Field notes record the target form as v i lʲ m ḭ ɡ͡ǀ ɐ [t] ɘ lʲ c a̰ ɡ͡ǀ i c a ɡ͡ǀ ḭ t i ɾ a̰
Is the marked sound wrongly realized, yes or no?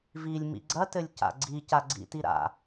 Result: no